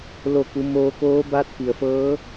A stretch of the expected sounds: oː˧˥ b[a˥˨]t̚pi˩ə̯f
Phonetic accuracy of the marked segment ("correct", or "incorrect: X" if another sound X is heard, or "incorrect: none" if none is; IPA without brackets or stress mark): incorrect: a˧˥